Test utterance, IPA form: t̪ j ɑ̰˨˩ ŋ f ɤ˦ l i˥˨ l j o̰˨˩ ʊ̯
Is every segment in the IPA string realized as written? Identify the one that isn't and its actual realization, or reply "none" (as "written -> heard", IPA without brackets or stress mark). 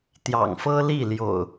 none